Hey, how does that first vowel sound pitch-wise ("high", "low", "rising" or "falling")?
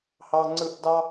high